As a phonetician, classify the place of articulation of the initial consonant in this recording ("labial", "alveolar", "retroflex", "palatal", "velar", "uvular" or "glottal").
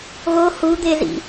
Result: velar